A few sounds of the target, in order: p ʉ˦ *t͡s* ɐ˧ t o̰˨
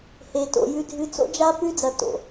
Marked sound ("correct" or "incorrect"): incorrect